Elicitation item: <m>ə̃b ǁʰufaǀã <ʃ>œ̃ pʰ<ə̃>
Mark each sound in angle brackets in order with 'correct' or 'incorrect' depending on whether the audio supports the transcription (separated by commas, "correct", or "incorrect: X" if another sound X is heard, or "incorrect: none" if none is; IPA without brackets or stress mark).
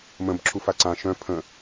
correct, correct, correct